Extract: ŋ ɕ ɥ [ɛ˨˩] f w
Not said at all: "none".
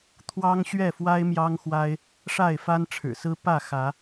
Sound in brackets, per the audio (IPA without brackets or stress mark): ɛ˥˨